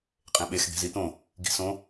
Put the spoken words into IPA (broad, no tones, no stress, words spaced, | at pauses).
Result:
qʼẽɓex d̪e̤zit̪õ | ɡi̤sõ